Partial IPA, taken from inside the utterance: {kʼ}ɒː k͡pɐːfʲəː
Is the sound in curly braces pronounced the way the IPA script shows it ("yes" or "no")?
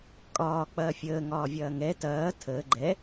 yes